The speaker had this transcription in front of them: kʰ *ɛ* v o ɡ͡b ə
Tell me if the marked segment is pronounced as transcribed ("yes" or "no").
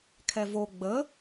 yes